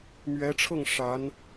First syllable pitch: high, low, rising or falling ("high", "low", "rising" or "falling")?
rising